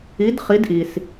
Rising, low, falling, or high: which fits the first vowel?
rising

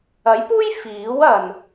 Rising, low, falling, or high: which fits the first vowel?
rising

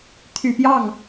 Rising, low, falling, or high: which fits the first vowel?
low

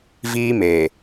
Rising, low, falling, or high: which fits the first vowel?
high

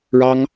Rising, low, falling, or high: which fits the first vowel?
high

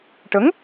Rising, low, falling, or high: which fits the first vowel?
rising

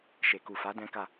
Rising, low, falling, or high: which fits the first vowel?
low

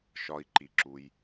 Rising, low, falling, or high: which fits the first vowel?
high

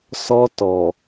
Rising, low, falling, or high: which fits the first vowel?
high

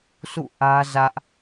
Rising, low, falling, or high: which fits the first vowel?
falling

